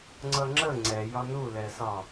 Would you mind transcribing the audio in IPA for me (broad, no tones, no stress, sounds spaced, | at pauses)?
ŋ͡ǀ ʌ ŋ͡ǁ ə ŋ͡ǀ ɛ j ɒ n u l ɛ s ɒ